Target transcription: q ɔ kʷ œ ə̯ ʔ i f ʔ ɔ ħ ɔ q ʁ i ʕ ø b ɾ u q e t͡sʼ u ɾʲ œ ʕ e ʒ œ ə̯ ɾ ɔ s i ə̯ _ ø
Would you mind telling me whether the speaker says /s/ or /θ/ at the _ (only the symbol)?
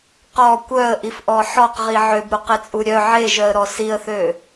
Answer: θ